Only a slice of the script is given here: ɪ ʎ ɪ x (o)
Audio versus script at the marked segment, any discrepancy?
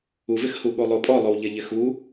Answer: yes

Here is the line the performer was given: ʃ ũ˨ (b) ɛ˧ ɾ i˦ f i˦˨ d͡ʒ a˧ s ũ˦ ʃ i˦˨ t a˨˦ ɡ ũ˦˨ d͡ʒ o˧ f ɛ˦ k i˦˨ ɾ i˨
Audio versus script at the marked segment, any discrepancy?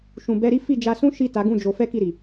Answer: no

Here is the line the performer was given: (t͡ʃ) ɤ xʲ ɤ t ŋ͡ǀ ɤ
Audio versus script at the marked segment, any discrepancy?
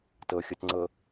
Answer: yes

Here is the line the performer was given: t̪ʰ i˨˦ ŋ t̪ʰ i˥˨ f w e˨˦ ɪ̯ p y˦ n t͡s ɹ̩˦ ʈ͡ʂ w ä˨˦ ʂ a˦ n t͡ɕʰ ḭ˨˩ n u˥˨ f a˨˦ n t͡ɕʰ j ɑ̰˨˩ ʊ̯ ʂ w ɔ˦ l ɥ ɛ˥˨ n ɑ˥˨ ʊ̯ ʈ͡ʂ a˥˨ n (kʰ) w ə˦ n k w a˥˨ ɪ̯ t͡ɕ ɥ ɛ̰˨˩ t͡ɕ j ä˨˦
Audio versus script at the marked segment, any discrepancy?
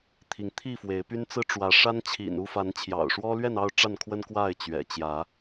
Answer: no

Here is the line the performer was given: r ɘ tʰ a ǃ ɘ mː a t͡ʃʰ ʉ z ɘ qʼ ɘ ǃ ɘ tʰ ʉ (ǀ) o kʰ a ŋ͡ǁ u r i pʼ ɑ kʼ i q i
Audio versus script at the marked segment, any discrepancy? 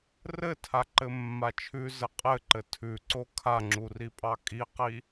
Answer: no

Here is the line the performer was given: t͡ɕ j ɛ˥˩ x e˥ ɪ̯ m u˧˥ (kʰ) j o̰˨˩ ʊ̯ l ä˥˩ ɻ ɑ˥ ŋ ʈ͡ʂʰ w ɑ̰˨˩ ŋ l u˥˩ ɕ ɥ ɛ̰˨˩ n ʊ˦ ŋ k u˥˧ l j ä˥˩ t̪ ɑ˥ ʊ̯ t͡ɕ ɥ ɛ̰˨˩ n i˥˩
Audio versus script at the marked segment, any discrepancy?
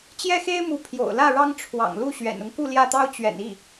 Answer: yes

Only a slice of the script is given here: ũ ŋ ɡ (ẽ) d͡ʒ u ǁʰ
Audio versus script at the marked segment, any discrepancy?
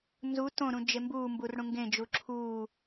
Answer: no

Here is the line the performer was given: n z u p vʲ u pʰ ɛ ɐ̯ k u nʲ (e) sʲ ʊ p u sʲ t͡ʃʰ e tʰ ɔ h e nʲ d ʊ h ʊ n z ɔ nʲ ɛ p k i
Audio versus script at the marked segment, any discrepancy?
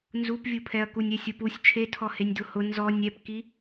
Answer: yes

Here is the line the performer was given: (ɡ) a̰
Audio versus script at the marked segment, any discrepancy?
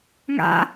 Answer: yes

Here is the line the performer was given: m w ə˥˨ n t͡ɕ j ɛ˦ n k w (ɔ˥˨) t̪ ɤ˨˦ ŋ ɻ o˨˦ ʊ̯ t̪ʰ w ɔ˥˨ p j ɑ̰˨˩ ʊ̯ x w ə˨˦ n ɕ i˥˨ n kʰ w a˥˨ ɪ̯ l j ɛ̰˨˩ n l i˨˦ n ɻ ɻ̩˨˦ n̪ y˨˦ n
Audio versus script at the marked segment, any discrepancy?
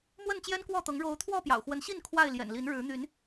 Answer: no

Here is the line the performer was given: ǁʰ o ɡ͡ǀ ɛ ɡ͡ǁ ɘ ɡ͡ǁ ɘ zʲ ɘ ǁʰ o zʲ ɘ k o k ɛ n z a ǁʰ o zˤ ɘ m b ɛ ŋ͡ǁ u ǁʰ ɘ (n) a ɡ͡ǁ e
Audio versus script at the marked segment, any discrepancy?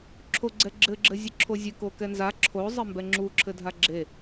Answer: yes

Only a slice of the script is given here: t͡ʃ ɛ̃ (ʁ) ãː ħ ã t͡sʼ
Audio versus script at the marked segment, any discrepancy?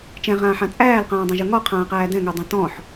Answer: no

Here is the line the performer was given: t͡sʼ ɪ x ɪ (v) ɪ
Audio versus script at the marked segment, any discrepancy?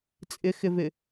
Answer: no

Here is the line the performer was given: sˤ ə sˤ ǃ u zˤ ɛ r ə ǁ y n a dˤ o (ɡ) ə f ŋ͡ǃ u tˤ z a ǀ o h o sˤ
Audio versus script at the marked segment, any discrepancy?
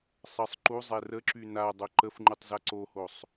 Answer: yes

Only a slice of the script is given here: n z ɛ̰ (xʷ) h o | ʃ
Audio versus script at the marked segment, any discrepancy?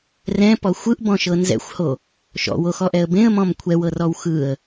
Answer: no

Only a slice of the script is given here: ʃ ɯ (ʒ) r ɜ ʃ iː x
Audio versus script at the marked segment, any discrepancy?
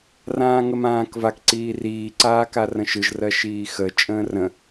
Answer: no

